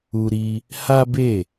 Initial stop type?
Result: plain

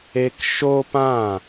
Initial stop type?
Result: plain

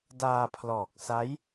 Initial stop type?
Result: plain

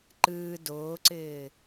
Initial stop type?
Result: click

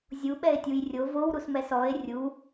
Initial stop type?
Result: implosive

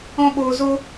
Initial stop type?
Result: implosive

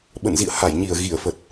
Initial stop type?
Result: implosive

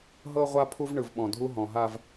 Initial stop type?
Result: aspirated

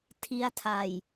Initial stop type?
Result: aspirated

